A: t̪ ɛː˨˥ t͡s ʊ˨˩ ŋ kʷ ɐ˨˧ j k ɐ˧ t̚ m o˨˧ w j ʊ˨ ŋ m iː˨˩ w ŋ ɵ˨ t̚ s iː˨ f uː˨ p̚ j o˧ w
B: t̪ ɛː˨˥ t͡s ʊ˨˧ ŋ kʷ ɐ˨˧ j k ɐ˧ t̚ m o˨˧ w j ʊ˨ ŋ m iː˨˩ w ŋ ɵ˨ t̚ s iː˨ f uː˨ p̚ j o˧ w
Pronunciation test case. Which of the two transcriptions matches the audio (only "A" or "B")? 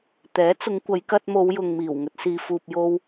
B